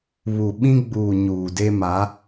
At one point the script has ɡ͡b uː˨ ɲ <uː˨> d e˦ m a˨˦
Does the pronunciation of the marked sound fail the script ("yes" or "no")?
no